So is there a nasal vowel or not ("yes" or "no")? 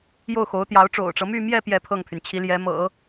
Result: no